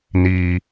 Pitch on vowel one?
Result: low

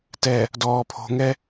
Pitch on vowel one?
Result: low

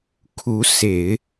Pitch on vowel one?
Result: rising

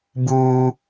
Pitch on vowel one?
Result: high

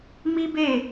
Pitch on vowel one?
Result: high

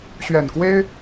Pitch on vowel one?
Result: low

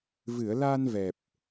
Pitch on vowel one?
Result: low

